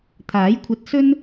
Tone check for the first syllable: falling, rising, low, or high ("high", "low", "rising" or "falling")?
rising